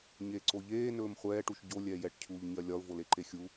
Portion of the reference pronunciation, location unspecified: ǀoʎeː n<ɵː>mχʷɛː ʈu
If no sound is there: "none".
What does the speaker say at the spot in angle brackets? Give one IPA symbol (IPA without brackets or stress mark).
ɵː